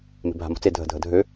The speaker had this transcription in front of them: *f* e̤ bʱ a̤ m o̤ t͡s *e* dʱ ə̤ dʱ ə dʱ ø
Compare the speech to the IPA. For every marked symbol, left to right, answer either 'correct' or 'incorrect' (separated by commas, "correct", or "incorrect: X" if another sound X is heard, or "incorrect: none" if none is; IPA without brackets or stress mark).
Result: incorrect: m, correct